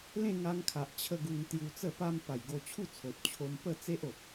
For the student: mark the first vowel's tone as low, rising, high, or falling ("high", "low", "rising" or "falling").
falling